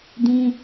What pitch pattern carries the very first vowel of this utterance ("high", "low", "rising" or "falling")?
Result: high